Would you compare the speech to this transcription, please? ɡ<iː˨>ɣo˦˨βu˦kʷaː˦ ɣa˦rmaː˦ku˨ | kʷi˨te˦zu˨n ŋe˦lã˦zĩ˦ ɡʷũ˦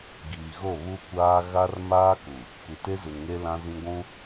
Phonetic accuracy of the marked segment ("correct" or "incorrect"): correct